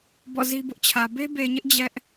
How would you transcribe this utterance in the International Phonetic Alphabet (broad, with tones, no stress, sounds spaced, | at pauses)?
b ɔ̰˦˨ z i˦ b ʊ˦ ʔ t͡ɕʰ ä˨ b e˦ b e˨ ɲ ɪ˦ ʔ d͡ʑ ɛ˦ ʔ